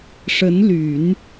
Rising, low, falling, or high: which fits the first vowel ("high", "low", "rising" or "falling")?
rising